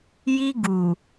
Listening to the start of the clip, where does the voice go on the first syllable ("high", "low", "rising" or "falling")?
high